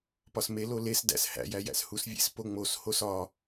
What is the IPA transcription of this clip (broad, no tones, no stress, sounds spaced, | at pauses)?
p ɒ s m e l o l e s d æ̰ s h æ̰ j æ j æ̰ s h u s vʲ ḛ s p o ŋ͡m o s h o s ɒ